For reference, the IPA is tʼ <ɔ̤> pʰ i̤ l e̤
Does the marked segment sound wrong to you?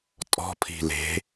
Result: no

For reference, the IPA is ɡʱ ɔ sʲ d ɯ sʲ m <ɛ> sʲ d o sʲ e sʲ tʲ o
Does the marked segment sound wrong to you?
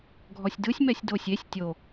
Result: no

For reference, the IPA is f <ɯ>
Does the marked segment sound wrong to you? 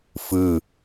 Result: no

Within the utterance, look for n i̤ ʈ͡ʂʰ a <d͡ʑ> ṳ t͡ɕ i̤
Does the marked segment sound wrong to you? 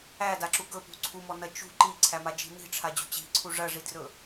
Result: no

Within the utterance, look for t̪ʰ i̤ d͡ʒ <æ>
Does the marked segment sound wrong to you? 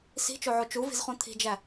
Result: no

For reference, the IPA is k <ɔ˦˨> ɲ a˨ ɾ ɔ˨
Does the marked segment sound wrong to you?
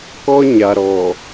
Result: yes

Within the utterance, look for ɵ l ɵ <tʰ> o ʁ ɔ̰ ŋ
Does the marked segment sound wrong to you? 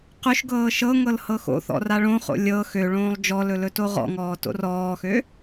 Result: yes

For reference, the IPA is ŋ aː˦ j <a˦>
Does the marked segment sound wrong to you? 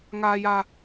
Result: no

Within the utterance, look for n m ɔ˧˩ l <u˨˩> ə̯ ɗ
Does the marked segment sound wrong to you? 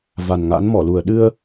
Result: no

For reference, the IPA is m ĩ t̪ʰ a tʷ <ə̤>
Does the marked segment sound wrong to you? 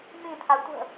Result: no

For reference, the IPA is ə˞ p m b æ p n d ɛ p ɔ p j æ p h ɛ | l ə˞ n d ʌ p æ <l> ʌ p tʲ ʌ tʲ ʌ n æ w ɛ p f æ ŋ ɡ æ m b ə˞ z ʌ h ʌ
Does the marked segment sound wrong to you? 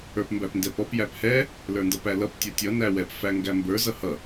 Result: no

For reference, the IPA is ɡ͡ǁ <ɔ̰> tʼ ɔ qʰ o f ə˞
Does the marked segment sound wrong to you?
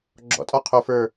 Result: no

